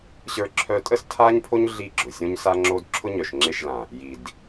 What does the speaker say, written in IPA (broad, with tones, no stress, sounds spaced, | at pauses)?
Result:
ɕ ə˞˧ ǁʰ œ˧ tʼ ə˦ s tʰ a˦ ɲ pʰ o˦ ɲ ɮ i˦˨ ɡ͡ǁ ʊ˨ sʲ õ˦ ɲ s a˦ ŋ͡ǁ o˦ d ǁʰ ʊ˦ ɲ œ˨ ʃ ŋ͡ǁ e˦˨ ʃ l ã˨ | j i˨ d